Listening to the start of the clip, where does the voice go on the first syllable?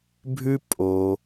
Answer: high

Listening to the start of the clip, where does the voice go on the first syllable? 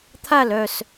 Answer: falling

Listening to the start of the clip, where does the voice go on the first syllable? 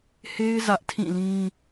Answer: high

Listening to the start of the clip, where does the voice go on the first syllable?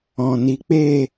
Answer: low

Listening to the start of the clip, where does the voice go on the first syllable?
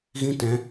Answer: high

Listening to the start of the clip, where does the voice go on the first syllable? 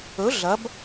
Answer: rising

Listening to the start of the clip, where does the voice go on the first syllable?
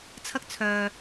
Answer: high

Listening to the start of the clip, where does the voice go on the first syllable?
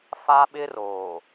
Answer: high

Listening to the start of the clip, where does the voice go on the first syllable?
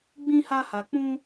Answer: high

